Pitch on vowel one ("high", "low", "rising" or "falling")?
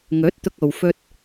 rising